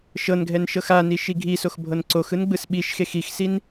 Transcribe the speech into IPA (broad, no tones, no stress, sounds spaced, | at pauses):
ʃ ɤ n ɡʱ ɛ n ʃ ɤ x a n i ʃ i ɡʱ i s o x bʱ ɤ n ǀ o x ɯ n ɡ͡b ɯ s ɓ i ʃ x e x i x s i n